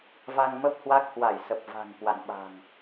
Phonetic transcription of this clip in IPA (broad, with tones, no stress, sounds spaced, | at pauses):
v a˧ ŋ m ə˦˥ p̚ h w a˦˥ k̚ h w a˧˩ j s ə˨˩ p̚ v a̤˨˩ ŋ k w a̰˧˨ n ɓ a̤˨˩ ŋ